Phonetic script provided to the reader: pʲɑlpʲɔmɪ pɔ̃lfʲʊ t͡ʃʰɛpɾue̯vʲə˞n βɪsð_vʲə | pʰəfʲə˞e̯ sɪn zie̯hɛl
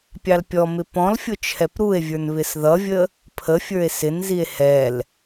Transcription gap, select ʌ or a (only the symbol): ʌ